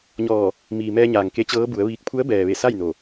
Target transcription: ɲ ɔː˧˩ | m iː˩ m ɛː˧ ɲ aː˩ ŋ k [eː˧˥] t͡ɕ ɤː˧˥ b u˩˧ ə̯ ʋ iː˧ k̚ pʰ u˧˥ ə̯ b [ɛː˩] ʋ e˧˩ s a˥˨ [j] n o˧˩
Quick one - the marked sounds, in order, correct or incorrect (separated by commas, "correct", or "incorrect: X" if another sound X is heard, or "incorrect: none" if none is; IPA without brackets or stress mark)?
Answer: incorrect: e˧˥, correct, correct